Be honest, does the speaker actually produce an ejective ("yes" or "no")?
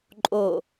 yes